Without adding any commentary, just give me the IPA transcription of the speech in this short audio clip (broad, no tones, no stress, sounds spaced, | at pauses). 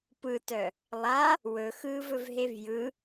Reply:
p ɯ t œ | lˠ a | w ɵ x ɯː v ɵ v ɦ e v j ɯ